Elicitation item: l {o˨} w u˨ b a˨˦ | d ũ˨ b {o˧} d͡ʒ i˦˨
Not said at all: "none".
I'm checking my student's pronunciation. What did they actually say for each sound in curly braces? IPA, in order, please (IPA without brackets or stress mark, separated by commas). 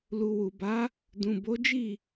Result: u˨, o˨˦